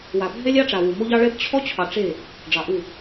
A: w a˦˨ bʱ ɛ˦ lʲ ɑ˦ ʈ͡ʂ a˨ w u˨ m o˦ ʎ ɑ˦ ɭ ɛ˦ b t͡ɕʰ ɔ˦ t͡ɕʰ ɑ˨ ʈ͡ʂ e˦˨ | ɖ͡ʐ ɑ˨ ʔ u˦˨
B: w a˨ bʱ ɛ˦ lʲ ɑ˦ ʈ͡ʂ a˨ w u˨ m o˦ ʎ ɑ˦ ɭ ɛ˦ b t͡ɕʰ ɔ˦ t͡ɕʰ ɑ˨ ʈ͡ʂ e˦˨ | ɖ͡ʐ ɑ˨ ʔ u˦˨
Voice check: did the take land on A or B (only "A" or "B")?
B